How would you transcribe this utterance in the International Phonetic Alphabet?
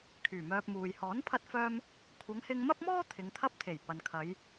kʰ yː˨˩ m œː˧ p̚ m uː˨ j h ɔː˨˥ n pʰ ɐ˧ t̚ f œː˧ m | kʷʰ ɐ˨˧ ŋ h ɪ˧ ŋ m ɐ˥ p̚ m ɔː˥ t̪ʰ ɪ˨˧ ŋ t̪ʰ ɐ˥ p̚ t̪ʰ e˨˩ j p ɐ˨ n kʰ ɐ˨˧ j

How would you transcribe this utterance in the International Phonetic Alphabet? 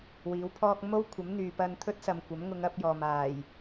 w iː˨˥ w pʰ ɔː˥ k̚ m o˥ w kʷʰ ɐ˨˥ m n̪ yː˨ p ɐ˧ n t̪ʰ ɵ˥ t̚ s ɐ˨ m kʷ ɐ˨˥ m ŋ ʊ˨˧ ŋ ɐ˨˥ p̚ j ɔː˨ m aː˨˩ j

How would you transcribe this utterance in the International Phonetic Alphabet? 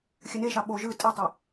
xʲ ɘ n e ʃ ɑ ɓ o ʒ ɯ tʼ e tˤ ɯ

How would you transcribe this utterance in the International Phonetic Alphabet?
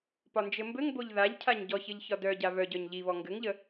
p ɒ n d͡ʒ ɘ m b ɘ ŋ b o ʎ ð a ʎ cʰ a ɲ ɟ ɔ ç ɘ ʎ ç ɒ d œ ɟ a β œ ɟ œ ɲ ʎ i β ɔ ŋ ɡ ɘ ŋ ʎ ə

